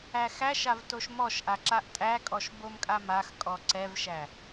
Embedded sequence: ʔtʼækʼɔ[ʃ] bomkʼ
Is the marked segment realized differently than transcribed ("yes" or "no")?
no